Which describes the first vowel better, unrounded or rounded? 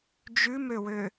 rounded